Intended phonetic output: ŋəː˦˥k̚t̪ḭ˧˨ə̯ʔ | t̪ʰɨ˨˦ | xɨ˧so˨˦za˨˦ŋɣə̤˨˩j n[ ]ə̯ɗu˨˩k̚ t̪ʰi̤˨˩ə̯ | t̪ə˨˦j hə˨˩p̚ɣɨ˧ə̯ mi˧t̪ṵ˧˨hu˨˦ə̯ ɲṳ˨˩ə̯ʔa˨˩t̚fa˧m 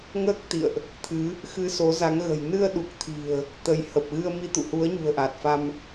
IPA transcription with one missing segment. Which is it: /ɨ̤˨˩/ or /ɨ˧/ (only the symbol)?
ɨ˧